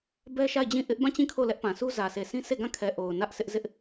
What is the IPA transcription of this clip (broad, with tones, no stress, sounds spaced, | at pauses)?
b ɛ˦ ʃ a˦˨ ɪ̯ d͡ʑ ĩ˦˨ ʔ ɪ˦ ʔ b ã˦˨ t͡ɕ ĩ˦˨ kʰ o˦˨ l ɛ˦ ʔ p ã˨ s u˦ z ä˨ s e˨ s ĩ˦ sʰ e˦˨ ɡ ã˦˨ kʰ ɛ˨ ʔ o˨ ʊ̯ n ä˦ ʔ sʰ ɪ˦ ʔ z ɪ˦ ʔ